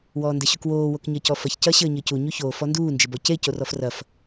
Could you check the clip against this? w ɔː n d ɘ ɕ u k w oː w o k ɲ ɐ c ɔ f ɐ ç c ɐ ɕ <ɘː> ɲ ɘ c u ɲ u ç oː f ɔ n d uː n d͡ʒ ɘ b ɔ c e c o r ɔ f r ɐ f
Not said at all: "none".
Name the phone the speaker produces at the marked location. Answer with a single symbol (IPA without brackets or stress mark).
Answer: ɘː